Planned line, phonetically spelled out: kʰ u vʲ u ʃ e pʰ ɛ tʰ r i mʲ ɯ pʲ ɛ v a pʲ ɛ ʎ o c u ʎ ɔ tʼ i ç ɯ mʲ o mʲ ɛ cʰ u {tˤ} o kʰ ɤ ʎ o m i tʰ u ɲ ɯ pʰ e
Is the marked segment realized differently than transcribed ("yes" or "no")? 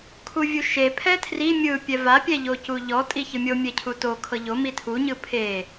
yes